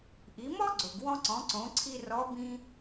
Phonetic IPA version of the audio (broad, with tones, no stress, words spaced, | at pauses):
ʔi˩˧mɔ˥ ɡ͡ǀo˩ɡwɔ̃˧ ǀɔ̃˩˧ǀõ˩˧ ǀʰi˧ rɔ˧˥ bĩ˧